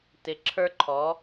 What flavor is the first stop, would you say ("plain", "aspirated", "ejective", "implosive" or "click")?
plain